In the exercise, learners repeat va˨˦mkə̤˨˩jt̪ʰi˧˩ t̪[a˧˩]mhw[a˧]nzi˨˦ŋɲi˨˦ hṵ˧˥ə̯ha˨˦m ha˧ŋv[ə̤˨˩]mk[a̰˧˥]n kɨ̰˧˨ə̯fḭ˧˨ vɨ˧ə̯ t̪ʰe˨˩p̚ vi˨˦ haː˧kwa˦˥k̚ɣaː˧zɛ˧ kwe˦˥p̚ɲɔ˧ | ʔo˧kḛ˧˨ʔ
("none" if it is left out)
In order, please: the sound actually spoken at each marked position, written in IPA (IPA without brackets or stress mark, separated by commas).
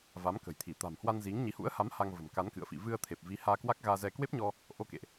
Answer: a̤˨˩, a˧, ə̤˨˩, a˨˦